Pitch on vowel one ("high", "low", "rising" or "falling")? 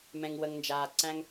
low